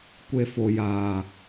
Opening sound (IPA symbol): kʷ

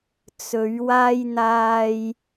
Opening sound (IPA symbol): t͡s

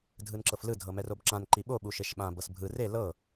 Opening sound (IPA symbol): dʱ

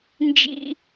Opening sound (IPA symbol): n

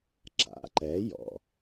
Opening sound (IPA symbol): ǁ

